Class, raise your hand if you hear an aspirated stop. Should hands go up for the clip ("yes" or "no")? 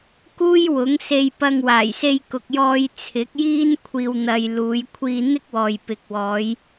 yes